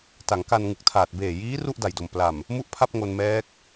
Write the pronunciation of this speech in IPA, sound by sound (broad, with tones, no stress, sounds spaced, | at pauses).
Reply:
t a˩˦ ŋ k a˧ n ŋ ɯ˨˩ k̚ tʰ aː˨˩ t̚ b eː˨˩ j iː˦˥ r u˥˩ ʔ d a˨˩ j d o˨˩ m p l a˨˩ m | m u˥˩ ʔ pʰ a˥˩ p̚ ŋ o˧ n m ɛː˦˥ k̚